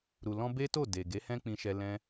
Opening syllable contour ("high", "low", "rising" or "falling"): low